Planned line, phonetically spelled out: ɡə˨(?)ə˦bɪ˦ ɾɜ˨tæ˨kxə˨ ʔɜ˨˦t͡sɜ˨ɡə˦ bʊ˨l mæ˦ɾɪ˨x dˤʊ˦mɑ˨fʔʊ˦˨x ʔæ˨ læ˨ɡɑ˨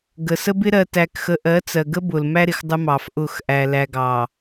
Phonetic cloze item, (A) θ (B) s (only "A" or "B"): B